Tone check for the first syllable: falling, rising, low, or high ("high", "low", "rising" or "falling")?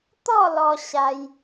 falling